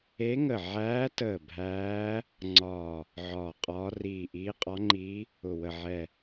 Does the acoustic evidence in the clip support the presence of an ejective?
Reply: yes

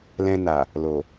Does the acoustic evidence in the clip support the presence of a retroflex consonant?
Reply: no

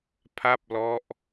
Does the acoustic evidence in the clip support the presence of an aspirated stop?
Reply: yes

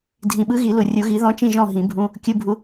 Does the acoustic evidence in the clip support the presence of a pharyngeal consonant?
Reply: no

